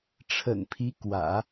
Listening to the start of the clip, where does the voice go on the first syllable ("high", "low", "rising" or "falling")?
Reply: low